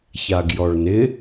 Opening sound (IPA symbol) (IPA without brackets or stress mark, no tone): ç